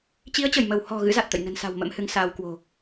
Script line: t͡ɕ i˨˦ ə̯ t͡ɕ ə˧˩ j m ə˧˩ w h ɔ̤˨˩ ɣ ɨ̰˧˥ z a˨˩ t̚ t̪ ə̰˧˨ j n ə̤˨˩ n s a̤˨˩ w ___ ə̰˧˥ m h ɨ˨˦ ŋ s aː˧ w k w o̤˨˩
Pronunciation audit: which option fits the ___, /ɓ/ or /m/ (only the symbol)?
m